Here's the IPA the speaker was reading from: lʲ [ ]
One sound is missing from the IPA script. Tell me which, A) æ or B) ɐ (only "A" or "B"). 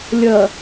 B